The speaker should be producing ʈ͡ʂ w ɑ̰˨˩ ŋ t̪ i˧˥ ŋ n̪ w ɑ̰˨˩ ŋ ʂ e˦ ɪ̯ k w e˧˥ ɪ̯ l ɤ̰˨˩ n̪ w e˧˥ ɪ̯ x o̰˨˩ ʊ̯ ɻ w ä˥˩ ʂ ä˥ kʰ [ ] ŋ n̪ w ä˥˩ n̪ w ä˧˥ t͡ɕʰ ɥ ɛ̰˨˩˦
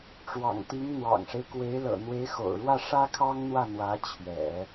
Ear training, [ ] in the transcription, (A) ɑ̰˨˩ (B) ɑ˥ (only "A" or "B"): B